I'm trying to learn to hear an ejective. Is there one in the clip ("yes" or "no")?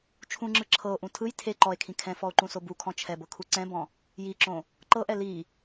no